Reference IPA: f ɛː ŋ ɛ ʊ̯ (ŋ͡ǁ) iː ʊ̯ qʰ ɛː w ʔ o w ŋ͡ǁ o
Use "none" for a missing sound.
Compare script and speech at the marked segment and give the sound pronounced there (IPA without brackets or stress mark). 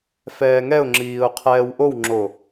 ŋ͡ǁ